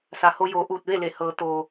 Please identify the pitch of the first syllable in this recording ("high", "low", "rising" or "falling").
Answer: low